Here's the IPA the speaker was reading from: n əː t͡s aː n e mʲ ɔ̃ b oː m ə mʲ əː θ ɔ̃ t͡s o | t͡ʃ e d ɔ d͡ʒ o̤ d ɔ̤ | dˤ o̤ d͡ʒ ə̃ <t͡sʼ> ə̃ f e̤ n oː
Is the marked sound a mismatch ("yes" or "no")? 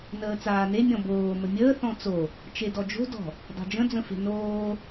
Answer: yes